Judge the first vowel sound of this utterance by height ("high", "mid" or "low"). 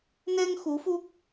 mid